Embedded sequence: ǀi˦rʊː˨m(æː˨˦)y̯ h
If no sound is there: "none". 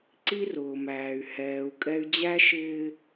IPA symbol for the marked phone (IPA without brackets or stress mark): æː˨